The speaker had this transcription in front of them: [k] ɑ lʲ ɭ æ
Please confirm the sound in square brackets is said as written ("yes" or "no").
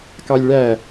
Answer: yes